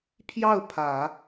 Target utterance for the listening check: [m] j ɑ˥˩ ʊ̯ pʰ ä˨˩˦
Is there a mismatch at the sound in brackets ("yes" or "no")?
yes